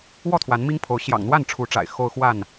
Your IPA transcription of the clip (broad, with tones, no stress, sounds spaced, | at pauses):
w ɔ˥˨ t̪ʰ w a˨˦ n m i˦ ŋ pʰ o˨˦ ʊ̯ ɕ j ɑ̰˨˩ ŋ n̪ w a˥˨ n ʈ͡ʂʰ u˨˦ ʈ͡ʂ a̰˨˩ ɪ̯ x o˦ ʊ̯ x w a˥˨ n